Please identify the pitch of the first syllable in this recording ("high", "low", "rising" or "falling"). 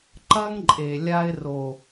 high